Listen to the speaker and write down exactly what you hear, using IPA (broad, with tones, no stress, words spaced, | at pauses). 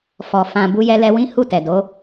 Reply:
fɔ˨ fã˨ bu˧jɛ˧lɛ˧ wĩ˦ hu˦˨tɛ˨do˨˦